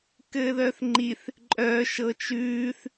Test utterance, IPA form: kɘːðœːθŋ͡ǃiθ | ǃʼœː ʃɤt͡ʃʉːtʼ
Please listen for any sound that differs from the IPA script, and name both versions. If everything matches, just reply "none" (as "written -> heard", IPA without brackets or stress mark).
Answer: tʼ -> θ